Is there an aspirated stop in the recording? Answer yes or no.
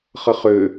no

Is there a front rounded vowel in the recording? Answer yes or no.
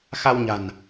no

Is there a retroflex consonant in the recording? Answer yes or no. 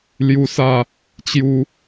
no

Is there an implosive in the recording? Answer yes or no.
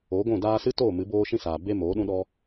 yes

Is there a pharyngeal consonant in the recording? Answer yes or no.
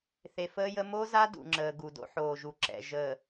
yes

